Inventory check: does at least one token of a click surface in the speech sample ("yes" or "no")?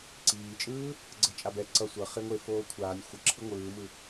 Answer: yes